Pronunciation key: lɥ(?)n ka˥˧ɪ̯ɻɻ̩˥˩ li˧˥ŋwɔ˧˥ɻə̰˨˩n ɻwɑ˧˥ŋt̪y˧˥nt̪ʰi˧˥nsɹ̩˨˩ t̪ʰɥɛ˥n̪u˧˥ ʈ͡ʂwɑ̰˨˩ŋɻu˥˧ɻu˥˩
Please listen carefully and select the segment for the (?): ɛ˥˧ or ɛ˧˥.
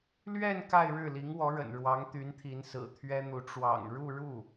ɛ˥˧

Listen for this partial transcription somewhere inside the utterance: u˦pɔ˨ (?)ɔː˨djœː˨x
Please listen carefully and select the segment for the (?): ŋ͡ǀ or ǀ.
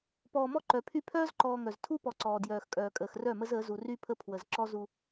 ǀ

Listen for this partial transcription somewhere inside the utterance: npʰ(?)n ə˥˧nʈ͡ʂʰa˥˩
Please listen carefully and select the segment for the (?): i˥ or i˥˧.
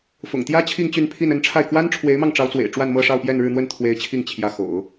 i˥˧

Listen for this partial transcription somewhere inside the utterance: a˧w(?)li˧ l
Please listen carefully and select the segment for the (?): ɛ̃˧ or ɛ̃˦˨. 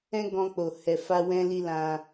ɛ̃˧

